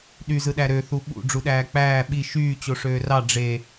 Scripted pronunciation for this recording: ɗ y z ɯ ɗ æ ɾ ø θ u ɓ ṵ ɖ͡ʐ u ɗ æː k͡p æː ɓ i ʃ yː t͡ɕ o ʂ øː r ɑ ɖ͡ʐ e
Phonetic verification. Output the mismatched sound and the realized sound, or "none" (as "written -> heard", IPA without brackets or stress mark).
none